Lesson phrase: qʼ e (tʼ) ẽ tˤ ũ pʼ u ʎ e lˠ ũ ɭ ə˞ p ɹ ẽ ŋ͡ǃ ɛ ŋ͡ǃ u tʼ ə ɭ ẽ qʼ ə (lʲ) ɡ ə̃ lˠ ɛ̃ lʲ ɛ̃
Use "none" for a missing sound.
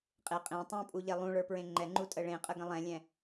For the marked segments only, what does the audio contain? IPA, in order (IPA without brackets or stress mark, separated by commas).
qʼ, none